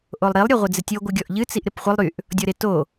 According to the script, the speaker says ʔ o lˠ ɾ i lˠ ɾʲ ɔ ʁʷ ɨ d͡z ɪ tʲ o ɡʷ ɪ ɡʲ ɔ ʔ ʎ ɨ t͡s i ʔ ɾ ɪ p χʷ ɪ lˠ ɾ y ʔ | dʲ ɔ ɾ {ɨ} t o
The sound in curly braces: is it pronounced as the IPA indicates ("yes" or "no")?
no